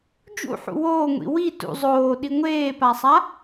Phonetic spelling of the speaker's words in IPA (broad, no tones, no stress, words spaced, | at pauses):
d͡ʒṵħṵ woːŋʷḭ wi tṵ zˤoːɗi ŋʷeːpasˤa